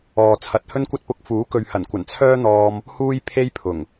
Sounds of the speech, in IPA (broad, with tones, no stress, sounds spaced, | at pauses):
ɔː˨ t͡sʰ ɐ˨ t̚ h ɵ˥ n kʷ ɐ˥ t̚ p ʊ˧ k̚ f uː˨˥ k ɵ˨ ɥ h ɐ˨˩ n kʷ ɐ˨˩ n t͡sʰ œː˥ n̪ ɔː˧ m | h uː˥ j pʰ e˥ j pʰ ʊ˨˩ ŋ